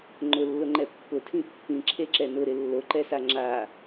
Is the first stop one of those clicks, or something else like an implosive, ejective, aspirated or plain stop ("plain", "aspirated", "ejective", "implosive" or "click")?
click